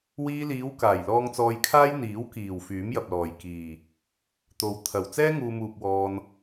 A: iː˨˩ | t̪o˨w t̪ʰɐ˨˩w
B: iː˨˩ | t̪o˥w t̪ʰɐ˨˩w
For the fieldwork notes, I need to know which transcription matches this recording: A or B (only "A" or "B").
A